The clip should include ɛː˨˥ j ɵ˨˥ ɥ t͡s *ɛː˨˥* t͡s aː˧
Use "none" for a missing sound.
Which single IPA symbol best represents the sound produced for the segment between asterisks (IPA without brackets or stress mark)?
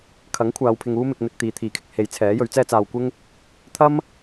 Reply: ɛː˥